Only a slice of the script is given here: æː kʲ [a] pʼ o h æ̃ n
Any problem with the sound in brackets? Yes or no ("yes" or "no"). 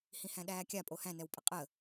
no